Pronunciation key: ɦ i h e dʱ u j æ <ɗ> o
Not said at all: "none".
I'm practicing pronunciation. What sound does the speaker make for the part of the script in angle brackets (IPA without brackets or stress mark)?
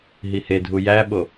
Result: ɓ